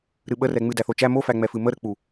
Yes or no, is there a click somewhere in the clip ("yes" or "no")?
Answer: no